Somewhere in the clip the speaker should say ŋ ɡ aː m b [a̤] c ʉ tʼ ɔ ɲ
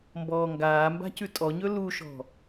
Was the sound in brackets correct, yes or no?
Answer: yes